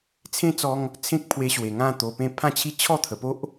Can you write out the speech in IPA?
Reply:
t͡sʰẽ˦t͡sɔ˧ŋ | t͡sʰẽ˦k̚pʰwe˧ɕwe˨˩ ŋã˥˧ t̪o˧pẽ˥˧ pʰã˥˧t͡ɕʰi˦ t͡ɕʰɔ˥˧t̪ʰə˨˩po˦ʔ

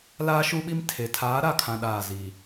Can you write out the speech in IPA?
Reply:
laː˦ʃu˦ɓi˦m tʰe˨ tʰaː˨˦ɾa˦˨kʰã˨ ɗaː˦˨zi˨

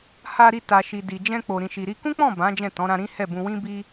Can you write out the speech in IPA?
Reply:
ha˧ɾi˧ta˨ ʃi˨di˨d͡ʒɛ̃˧k͡po˨ ɾĩ˨ʃi˨ɾi˧ kũ˦k͡pɔ̃˦˨ bã˨˦ d͡ʒɛ̃˦˨tɔ̃˨˦ ɾã˧ɾĩ˦hɛ˦˨bũ˧ wĩ˦bi˦

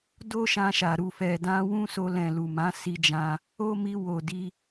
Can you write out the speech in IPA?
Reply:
do˦ʃã˧ʃa˨ ɾu˨fɛ˨ dã˧wũ˦so˧ lɛ̃˨lu˨mã˨˦ si˦d͡ʒã˦ | o˦mi˧ wo˨ di˧

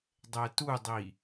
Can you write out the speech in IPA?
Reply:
dˤɛtudˤi

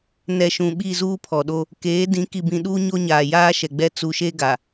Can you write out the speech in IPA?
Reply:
nɛ˨ ʃũ˨ɓi˦˨zuː˦ pʰɔ˨ɗo˦ | keː˨˦dĩ˨˦ ki˨bĩ˨ ɗuː˦ɲo˦ ɲaː˨jaː˦ʃɛ˨ɡ͡bɛ˦ t͡su˨ʃe˦ɡa˨

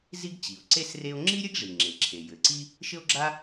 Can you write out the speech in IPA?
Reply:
zi˥ɡ t͡ɕi˩o̯ǀe˥s re˥o̯ ŋ͡ǁi˥ɾʲɘ˥ɡʐi˩ ŋ͡ǁe˩ǁʰe˩jɘ˩ ǀi˥ | ʃɘ˥o̯ɡ͡ǁa˥

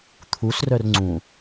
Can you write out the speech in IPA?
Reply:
t̪ʰusrœr ŋ͡ǀũ

